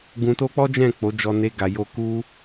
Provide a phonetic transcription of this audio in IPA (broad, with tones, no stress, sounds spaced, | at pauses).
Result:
ɡ ũ˧ t o˦ k͡p ɔ˦ d͡ʒ ɛ̃˦˨ k͡p o˨˦ d͡ʒ ɔ˧ n e˧ ɡ a˨ j o˧ k u˦